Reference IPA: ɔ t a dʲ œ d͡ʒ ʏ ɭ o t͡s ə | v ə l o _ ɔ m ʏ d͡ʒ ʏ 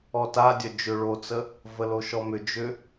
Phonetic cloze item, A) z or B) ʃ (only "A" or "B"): B